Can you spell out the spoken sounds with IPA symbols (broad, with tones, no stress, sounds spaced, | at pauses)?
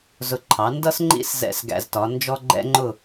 z ʊ˧ ǃʰ ɑ˩˥ n d ʌ˥ s ŋ͡ǃ ḭ˥ s z ɛ̰˥˩ s ɡ æ̰˧ z t ɒ˩˥ n d͡ʒ ɔ˥ ɡ͡ǃ ɛ̰˥ ŋ͡ǃ ʊ˥˩